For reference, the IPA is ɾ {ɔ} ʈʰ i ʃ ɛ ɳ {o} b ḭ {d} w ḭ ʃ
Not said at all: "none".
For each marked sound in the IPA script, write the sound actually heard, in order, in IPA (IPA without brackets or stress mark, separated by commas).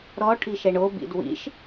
ɔ, o, d